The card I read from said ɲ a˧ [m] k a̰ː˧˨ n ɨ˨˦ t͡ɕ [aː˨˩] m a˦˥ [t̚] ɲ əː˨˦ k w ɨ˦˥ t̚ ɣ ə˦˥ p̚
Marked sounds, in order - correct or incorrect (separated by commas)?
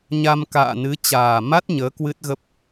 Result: correct, correct, correct